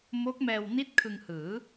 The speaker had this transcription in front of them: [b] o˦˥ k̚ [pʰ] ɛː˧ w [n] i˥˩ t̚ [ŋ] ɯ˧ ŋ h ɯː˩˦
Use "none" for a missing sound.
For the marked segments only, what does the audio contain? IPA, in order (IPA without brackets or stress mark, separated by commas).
m, m, n, kʰ